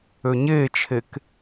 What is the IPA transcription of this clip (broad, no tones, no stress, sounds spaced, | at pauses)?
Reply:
ø ɲ e t͡ʃʰ e k